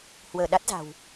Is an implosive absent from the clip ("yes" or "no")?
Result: no